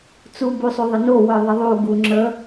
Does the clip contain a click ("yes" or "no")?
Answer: yes